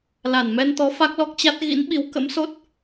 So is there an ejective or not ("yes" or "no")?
no